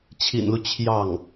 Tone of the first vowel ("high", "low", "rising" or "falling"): low